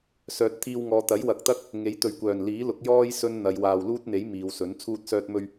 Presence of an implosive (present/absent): absent